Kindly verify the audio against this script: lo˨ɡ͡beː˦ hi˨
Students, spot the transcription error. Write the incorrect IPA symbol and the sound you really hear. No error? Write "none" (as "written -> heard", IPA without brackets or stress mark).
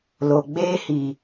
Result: none